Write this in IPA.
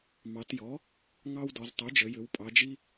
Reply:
m ɑ˩˧ t j ɔ˩˥ | ŋ ɑ˦ w d ɔ˩˧ z tˤ y˩˥ d͡ʒ ə˩˧ j ʏ˩˧ w pʼ ɑ˩˧ d͡ʒ i˦

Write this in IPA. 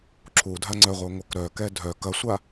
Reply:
ǁʰ u dʱ a ŋ͡ǀ œ ʁʷ œ ŋʷ œ k ɾ œ k ɛ dʱ œ k ɐ sʷ a

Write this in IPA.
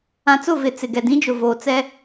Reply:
ã˨ t͡s ʊ˦˨ v ɪ˨ t͡s ɪ˨ ɡ ɛ˨ d ĩ˦ d͡ʒ ʊ˨ v oː˨ t͡s ɛ˦

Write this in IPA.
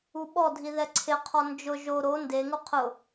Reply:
u ɓ ɔ dʱ i ð ɛ ǀʰ ɪ qʰ ɔ n d͡ʒ ʊ ʒ o ɾ o n d e ŋ u qʰ ʊ

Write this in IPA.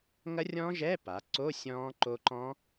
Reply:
ŋ ɐ˦˥ rʲ ɔ̃˦˥ ʒ ɛː˧˥˧ p a˩˧ ǀ o˧˥˧ sʲ ɔ̃ː˦˥ ǃ o˦˥ ǃ ɔ̃˦˥

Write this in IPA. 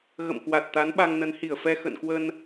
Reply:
ɣ ə̰˧˨ m k w a˨˩ t̚ t̪ a˨˦ n ɓ a˧ ŋ n ə˨˦ n h i˧˩ ə̯ f ɛ˧ x ə̰˧˨ n k w ə˧ n

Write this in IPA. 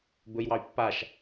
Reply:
b ɵ j w ɑ y̯ pː a ʃ

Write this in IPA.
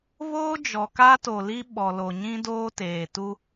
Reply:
β oː˦ d͡ʒ ɔ˨ k a˦ t o˨ l i˦ ɓ ɔ˨ l o˨ ɲ ĩ˦ d oː˦ t eː˨ t u˦

